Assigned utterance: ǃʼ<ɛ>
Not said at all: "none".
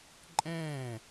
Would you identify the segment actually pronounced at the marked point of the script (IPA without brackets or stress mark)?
ɛ̃